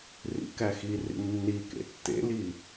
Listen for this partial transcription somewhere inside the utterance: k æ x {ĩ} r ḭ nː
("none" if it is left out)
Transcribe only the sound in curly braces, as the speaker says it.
i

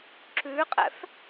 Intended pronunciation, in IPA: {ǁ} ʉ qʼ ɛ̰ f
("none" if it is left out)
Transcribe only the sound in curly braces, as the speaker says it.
ǁ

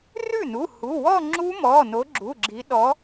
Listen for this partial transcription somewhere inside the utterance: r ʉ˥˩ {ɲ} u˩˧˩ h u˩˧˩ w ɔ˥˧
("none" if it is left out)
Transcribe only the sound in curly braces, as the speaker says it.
n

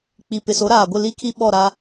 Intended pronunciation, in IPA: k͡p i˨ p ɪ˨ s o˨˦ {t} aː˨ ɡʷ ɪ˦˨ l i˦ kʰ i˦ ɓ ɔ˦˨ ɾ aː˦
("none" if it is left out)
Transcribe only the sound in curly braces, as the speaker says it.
ɾ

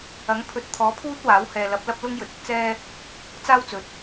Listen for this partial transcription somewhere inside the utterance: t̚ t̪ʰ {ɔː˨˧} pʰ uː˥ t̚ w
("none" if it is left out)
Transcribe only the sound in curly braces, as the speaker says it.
ɔː˨˥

